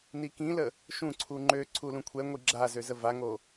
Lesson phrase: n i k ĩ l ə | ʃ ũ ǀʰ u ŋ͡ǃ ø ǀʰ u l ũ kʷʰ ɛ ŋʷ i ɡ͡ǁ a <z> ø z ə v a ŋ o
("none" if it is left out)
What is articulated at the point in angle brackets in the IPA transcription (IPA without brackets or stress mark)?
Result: z